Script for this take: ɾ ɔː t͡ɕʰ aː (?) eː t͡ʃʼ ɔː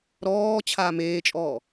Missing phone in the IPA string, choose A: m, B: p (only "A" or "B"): A